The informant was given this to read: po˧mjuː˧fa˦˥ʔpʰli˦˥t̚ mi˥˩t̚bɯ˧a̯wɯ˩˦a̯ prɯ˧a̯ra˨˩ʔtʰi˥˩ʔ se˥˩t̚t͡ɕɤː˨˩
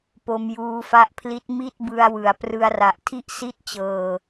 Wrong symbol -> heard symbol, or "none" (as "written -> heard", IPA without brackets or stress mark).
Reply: e˥˩ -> i˥˩